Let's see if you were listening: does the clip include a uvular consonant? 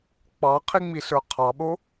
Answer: yes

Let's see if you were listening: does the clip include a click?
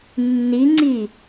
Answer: yes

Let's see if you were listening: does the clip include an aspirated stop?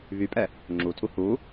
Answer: yes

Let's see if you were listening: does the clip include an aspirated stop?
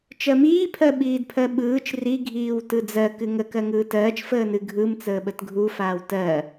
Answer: yes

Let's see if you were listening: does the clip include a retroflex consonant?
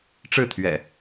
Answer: yes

